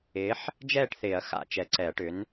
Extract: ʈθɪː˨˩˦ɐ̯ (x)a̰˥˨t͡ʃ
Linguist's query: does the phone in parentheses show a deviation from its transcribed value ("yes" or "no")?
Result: no